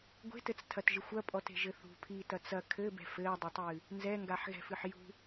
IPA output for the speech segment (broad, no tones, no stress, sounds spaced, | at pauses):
ɡʷ e̤ t ɘ t͡s tʰ ɐ t ʒ ɨ xʷ ɐ pʼ ɔ t e̤ ʒ ɘ θ ṳ pʰ iː t ɐ t͡s ɐ kʰ ɘ b ɛ̤ f ɘː dˤ ɛ tˤ ɨː | n z ɛ ŋ ɡ a ħ ɣ ɛ̤ f ɨ ħ j ṳ